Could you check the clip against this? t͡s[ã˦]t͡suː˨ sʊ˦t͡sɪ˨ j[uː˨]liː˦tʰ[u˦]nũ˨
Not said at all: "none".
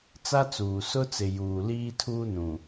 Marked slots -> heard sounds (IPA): a˦, uː˨, uː˦

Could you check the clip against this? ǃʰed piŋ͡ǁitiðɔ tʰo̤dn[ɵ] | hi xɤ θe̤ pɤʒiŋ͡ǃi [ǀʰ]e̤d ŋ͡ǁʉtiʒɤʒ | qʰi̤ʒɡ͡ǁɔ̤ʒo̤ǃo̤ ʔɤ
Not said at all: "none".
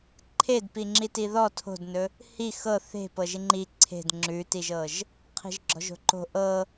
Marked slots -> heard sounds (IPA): ɵ, ǀʰ

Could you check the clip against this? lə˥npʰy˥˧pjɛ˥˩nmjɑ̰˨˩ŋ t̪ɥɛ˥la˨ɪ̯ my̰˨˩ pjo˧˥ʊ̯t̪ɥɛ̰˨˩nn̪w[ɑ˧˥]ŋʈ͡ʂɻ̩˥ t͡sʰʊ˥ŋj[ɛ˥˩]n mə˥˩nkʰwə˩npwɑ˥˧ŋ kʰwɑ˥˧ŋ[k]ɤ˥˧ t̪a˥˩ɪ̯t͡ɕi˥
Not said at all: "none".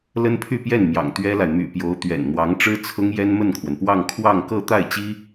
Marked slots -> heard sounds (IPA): ɑ˧˥, ɛ˥, k

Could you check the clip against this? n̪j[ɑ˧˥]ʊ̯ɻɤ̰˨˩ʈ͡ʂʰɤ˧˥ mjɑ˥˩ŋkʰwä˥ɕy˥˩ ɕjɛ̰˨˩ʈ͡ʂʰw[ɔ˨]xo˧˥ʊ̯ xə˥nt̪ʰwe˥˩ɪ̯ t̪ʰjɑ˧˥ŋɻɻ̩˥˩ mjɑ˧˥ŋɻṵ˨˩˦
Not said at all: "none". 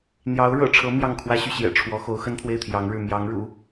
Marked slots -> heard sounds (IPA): ɑ˧˥, ɔ˧˥

